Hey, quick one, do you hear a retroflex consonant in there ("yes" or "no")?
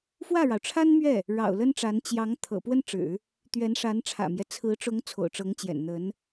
yes